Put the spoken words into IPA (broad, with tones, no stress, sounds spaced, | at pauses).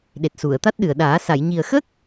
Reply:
ɗ e˨˩ t̚ s u˨˩˨ ə̯ t̪ a˦˥ t̚ ɗ ɨ˨˩ ə̯ ɗ aː˨˩˦ s a˨˩˨ j ɲ i˨˩ ə̯ x ə˦˥ k̚